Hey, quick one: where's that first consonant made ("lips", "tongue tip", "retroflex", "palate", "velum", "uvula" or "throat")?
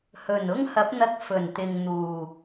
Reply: throat